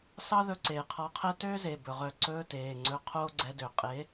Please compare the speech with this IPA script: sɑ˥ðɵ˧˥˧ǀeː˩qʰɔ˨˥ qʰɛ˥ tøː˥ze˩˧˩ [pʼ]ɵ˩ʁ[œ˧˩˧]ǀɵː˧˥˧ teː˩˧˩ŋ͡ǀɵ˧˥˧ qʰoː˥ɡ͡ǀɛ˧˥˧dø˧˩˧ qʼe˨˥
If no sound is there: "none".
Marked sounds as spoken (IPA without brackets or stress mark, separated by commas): b, œ˧˩˧